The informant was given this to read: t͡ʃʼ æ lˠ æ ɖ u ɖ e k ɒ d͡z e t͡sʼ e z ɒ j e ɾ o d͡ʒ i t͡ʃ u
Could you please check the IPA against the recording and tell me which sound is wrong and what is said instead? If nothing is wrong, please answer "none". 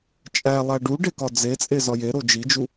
t͡ʃ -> d͡ʒ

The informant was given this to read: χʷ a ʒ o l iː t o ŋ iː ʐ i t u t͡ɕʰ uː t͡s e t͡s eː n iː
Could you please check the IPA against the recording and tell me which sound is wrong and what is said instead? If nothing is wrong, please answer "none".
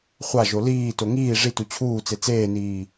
none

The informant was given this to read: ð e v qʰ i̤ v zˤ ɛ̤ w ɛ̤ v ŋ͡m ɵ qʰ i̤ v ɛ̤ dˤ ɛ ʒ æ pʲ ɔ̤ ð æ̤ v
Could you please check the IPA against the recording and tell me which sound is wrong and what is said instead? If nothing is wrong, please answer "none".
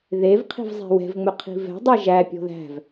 none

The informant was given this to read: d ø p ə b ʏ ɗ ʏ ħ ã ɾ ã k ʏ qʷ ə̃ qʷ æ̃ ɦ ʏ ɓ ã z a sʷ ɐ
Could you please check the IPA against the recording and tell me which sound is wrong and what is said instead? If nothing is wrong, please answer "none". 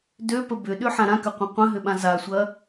æ̃ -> ə̃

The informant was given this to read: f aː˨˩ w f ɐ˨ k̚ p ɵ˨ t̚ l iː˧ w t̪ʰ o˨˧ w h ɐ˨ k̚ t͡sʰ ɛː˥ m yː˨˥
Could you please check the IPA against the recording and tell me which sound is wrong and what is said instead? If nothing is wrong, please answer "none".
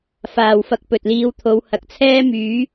none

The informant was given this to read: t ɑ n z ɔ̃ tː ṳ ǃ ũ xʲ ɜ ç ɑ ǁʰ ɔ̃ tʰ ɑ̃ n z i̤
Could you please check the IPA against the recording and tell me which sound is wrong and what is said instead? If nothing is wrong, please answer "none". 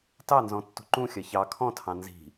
ǁʰ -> kʰ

